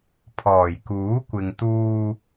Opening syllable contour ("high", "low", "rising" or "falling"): low